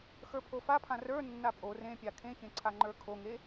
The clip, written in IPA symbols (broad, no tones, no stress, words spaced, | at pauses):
xə˞pʰofapʰã rə˞nːa pʼo rẽpʲa kʰẽçẽ ǀʰaŋ͡ǃə˞kʰoŋe